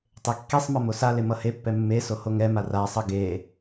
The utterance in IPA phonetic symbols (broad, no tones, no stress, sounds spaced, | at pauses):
tˤ e kː i sˤ m ʌ m o s a l e m ʌ h e pː ɛ mː e s o h o ŋ ɛ m a r a sˤ ʌ ɡ e